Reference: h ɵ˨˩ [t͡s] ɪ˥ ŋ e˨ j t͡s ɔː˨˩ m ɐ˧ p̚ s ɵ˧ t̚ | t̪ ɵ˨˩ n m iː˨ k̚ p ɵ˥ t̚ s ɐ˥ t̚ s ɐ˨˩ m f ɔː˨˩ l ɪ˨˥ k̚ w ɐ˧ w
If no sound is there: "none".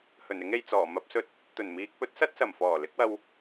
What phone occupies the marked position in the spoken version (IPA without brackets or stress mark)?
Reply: n